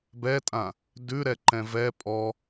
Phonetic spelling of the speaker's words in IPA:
b ɛ tʼ ã | d ʉ ɾ ɛ ǃ ɛ̃ v ɛ pʼ ɔ

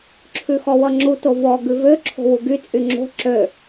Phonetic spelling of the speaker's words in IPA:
ǁʰ ʉ x ɔ w ʌ ŋ͡ǁ u t o v ɔ ɡ ʉ v ø ǁʰ o̤ w u ɡ y t͡sʼ y ŋ͡ǁ o̤ ǁ ø

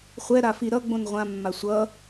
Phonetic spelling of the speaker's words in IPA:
χʷ ɛ ɾ a f i ɾ ʌ ɡ͡b õ n ʁʷ ã mː a sʷ ʌ

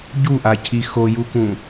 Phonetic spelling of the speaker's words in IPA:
ɟ u ʔ a cʰ i x o j u k ũ

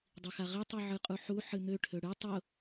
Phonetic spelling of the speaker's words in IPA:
dˤ i x a ʁ i tˤ ɨ ʕ ɨ qʼ u ħ u ħ ɨ n̪ ø ʈʰ ø ɽ ɨ tˤ ʊ

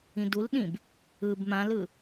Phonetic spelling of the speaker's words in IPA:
ĩ d u l ɗ ĩ b | ɯ b m ã l ɯ

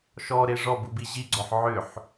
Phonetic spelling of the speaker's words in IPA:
ʃ ɔ ɾ e ʐ ɔ b u b i ʑ i ɡ͡ǀ ɔ ħ ʕ ʏ ħ

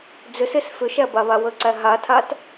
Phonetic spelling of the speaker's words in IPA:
d͡z ʏ s e s f ʏ ʃ æ b a β a w ə ǀ æ ɦ a tʰ a t

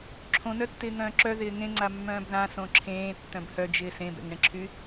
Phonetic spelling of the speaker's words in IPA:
ǁʰ õ n œ tː ɪː ŋ œ̃ː ǁ œ ð ɪː ŋ ẽ ŋ͡ǀ a mː œ̃ː b ð ã s õ ǁʰ ẽː tː œ̃ b h œ d͡ʒ ɪː s ẽ b ɛ̰ ŋ ɳ ẽ ǁʰ y

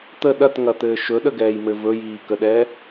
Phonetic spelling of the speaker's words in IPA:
t̪ ə ɗ ɐ t ŋ ɐ t̪ ɘː ʃ ɵ ɗ ə ɡ ɛː j m ɘ v ɵ j iː k ə ɗ ɛ

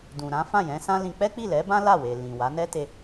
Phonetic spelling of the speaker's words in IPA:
d ũ˨ ɾ ã˨˦ f ã˦˨ j ɛ̃˨˦ s ã˦ l ĩ˧ k͡p ɛ˦ k͡p i˦˨ l ɛ˨˦ b ã˦ l a˦˨ w e˨ l ĩ˨ w a˨˦ n ɛ˦ t e˧

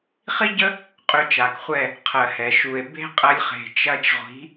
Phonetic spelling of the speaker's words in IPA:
χ i˦ ɟ ə˦ | qʼ ø˧ t͡ʃ a˨ k χʷ ɛ˦˨ | qʰ ɜ˨ h ɛ˨ ʃ u˨ e̯ b e̤˦ qʼ ɐ˧ lʲ χ e̤˨ t͡ʃ ɐ˧ t͡ʃ ʁʷ i̤˨˦

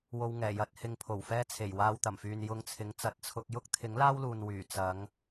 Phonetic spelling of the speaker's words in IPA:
w o˧ w ŋ ɛː˨˩ j ɐ˨˥ t̚ h ɪ˨ ŋ pʰ o˨˩ w f ɛː˧ t͡sʰ e˨˩ j w aː˧ w t̪ ɐ˨˩ m f yː˨ n j ʊ˧ ŋ t͡sʰ ɪ˨˧ ŋ t͡s ɐ˨˥ t̚ t͡sʰ ʊ˧ k̚ j ʊ˥ k̚ t̪ʰ ɪ˨˥ ŋ l aː˥ w l uː˨ n w yː˨˩ t͡s ɐ˨˧ ŋ

